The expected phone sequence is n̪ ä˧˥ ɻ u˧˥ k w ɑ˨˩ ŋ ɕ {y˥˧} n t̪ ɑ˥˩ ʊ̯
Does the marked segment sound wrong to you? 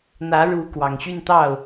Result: no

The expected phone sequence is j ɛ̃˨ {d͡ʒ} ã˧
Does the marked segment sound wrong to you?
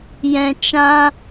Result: yes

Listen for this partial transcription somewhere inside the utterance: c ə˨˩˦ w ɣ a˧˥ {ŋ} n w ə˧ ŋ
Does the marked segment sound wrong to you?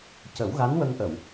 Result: yes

